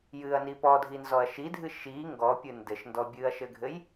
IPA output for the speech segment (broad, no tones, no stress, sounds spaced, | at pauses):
j ɨ ɐ̯ n i p ɔ dʱ i n z ɔ ɐ̯ ʃ i dʱ ɨ ʃ i ŋ ɡ ɔ pʲ ɨ n d ɘ ʃ n d ɔ bʲ ɨ ɐ̯ ʃ ɘ ɡʱ ɘ j